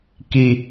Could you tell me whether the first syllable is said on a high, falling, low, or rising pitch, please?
high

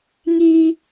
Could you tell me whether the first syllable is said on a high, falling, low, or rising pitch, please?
high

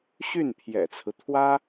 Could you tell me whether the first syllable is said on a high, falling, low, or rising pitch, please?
falling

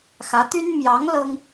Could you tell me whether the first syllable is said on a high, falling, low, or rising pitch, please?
rising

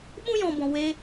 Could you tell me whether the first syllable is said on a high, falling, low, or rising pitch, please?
high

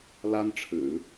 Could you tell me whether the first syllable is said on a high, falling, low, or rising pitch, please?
high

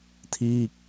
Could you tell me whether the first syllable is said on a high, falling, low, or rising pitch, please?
falling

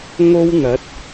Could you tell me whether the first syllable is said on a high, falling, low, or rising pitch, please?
high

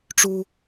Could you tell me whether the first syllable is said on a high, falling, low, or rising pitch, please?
high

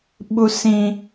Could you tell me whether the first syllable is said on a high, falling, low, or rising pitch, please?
high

